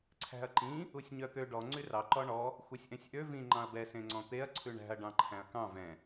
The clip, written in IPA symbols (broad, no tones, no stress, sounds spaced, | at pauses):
ǀʰ æ̤ ɐ̯ ǃ ĩ | u sʲ ɲ œ t̪ ø ɖ ɔ ŋ͡ǀ y r ɑ ǃ ɔ ɳ ɔ | xʷ œ sʲ ʔ ɛ̃ sʲ ʔ ø v ĩ ŋ͡ǃ ɑ̃ ɐ̯ b ɛ s ẽ ŋ͡ǀ ɔ̃ t̪ e ɐ̯ ǀʰ ʉ ɳ æ̤ ɐ̯ ɖ ɑ̃ ǃʰ æ̃ ɐ̯ k ɑ̃ v ɛ̃